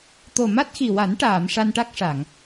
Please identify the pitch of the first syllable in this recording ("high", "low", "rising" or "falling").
low